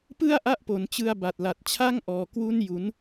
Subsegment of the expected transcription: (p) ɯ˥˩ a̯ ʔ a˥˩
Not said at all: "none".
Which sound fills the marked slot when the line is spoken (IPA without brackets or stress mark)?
p